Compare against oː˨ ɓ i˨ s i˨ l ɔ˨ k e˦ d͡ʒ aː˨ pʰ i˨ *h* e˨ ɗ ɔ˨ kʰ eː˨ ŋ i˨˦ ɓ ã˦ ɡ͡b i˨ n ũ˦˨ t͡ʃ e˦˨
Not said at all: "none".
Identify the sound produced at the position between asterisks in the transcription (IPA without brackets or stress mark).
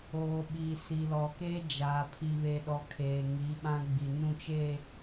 β